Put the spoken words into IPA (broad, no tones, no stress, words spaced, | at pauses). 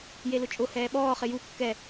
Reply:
jelʊt͡ʃʼʊ hɛːɓɔː χɪju kːɛ